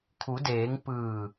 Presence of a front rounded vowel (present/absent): absent